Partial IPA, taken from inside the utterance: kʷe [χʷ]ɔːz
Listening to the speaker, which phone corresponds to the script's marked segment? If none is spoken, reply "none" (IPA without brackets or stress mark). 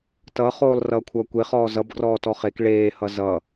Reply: χ